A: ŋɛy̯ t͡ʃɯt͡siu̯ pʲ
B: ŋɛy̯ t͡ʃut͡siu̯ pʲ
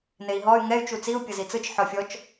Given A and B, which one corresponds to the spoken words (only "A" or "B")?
B